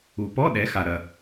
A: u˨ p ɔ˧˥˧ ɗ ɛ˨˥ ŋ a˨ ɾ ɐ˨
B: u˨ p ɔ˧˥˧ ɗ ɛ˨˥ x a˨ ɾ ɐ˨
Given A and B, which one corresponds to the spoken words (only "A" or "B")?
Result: B